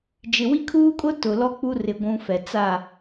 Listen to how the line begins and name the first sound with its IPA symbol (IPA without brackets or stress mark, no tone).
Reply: d͡ʒ